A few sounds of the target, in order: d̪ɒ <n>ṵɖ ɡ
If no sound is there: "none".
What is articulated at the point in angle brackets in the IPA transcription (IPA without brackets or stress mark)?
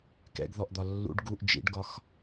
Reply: lː